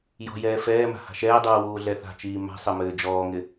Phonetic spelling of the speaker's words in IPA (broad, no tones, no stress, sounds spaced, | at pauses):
j ɔ̤ j ɛː f ɛː m a̤ h a̤ ʃ ɛː dˤ uː w uː ɮ ɛ θ a̤ t͡ʃ iː m a̤ sˤ ɘ m ɘː d͡ʒ ɔː ŋ ɪ